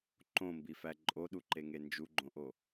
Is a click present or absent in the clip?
present